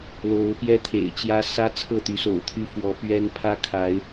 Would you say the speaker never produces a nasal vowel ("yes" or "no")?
yes